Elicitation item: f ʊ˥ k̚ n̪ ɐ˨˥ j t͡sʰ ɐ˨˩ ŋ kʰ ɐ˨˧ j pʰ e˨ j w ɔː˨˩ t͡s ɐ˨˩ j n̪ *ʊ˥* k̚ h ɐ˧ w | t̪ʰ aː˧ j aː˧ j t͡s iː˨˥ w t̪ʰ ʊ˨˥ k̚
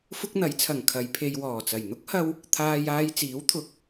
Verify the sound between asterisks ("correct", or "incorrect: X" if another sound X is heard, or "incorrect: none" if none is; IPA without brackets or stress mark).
correct